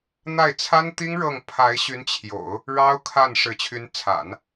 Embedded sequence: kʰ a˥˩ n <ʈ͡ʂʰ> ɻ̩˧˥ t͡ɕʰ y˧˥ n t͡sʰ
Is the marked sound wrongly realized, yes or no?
yes